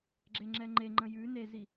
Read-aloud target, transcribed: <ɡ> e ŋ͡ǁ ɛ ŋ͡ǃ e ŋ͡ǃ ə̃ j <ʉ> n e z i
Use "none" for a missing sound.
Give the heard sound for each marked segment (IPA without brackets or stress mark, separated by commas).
ɡ͡ǁ, ʉ